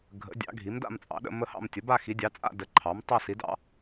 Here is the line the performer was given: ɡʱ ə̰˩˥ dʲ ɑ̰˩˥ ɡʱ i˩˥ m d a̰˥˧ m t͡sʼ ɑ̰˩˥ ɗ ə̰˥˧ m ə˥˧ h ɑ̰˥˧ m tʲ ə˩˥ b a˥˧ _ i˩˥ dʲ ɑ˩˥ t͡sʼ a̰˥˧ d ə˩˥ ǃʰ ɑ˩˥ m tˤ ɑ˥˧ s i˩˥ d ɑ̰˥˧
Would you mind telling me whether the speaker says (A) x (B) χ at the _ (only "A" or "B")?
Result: A